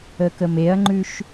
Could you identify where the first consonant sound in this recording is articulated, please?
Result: velar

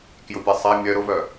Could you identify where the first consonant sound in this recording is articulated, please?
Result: velar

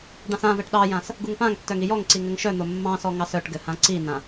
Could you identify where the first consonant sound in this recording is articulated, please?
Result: retroflex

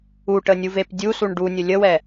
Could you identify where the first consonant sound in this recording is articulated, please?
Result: retroflex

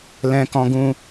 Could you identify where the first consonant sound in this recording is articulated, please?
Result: alveolar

